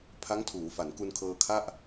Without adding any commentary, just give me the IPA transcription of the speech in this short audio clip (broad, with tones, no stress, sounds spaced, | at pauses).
pʰ a˦˥ ŋ tʰ uː˩˦ f a˩˦ n k u˧ n kʰ ɤː˧ kʰ a˥˩ ʔ